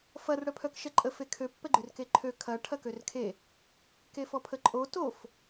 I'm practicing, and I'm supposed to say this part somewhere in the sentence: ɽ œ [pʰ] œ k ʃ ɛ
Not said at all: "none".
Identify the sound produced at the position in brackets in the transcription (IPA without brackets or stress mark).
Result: pʰ